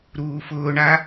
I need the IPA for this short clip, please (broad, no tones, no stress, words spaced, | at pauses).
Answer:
ɾuːfʊːɳa